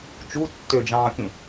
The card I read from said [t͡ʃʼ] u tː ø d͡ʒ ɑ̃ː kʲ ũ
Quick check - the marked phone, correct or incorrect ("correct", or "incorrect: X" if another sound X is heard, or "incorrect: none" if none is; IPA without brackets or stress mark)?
incorrect: t͡ʃ